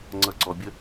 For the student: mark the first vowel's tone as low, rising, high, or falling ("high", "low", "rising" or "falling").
low